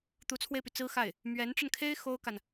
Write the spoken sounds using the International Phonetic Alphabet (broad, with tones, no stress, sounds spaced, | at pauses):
t̪ u˧˥ t͡sʰ w e˧ ɪ̯ p y˩ t͡s ɹ̩˥ x a˥˩ ɪ̯ | m ɥ ɛ˧˥ n ʈ͡ʂ ə˧ n kʰ e˥ ɪ̯ x o˥ ʊ̯ k a˨ n